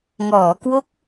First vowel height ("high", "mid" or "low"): mid